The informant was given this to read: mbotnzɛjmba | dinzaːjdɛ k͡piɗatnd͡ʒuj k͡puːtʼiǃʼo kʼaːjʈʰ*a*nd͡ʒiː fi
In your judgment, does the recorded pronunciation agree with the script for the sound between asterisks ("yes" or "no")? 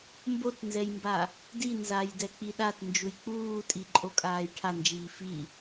yes